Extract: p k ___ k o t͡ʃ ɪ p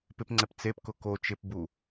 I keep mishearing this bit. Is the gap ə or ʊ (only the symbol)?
ʊ